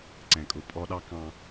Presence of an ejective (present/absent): present